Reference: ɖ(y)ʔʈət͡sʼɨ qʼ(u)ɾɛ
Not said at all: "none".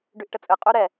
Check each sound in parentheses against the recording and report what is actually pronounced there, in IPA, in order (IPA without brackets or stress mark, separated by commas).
y, u